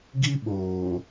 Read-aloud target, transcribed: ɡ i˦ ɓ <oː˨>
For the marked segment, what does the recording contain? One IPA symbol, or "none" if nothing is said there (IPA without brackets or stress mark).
oː˨